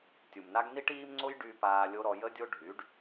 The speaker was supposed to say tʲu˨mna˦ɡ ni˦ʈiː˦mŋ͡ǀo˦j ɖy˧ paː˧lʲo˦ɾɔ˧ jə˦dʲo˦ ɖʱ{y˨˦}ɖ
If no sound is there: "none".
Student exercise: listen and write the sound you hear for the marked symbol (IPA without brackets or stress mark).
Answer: y˨˦